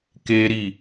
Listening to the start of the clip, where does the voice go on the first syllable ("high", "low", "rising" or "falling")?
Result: high